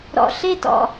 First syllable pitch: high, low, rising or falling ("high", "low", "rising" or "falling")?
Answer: low